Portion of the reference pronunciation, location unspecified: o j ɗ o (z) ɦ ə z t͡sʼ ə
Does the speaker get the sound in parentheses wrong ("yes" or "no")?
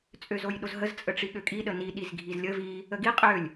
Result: no